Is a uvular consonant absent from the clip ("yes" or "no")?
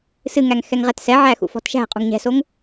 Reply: no